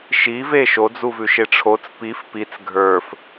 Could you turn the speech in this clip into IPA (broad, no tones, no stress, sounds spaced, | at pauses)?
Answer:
ʃ i v e ʃ o d͡z u v ʉ ʃ e ʈ͡ʂʰ o t͡s p i f p i t͡s ɡʱ ə˞ f